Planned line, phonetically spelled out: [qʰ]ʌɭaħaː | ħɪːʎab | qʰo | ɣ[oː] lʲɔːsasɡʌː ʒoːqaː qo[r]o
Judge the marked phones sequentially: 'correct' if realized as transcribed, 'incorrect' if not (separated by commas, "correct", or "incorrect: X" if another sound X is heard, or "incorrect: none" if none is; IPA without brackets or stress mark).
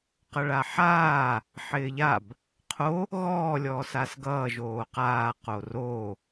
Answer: incorrect: q, incorrect: ɔː, correct